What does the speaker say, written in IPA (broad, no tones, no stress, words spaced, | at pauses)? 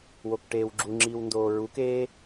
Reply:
wokʈeːwɡ͡ǁuŋ͡ǁiːw ndoːɹukeː